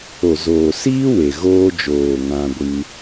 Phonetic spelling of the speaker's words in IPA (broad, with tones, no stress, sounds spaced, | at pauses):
o˨ z oː˨ s iː˦ w e˨ ɣ oː˧ d͡ʒ oː˨ ŋ ã˧ ɡʷ ɨ˧